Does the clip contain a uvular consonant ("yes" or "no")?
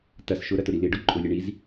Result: no